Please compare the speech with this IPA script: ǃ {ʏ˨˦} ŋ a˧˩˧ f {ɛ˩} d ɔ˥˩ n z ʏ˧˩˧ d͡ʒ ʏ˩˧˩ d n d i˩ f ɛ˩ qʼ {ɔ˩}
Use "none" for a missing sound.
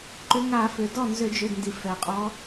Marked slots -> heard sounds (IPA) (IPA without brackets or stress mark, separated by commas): ʏ˨˦, ʏ˩, ɔ˨˦